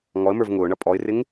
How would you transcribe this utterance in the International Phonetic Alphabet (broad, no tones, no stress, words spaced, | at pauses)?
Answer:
ŋɔə̯mə˞v ŋʊːɳʌ pʼɔɪ̯rɪŋ